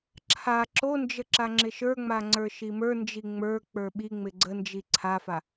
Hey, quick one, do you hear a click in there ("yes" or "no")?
yes